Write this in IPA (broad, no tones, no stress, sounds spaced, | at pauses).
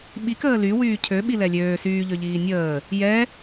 ɓ i k əː l y w yː cʰ ø ɓ i l ɛ lʲ øː s yː ʎ ø ʎ iː nʲ əː | j ɛ